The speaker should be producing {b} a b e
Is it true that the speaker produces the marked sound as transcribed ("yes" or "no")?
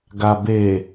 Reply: no